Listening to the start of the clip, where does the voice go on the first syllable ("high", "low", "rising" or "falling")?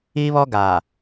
high